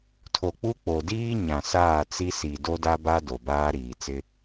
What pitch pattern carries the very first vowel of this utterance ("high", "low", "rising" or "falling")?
low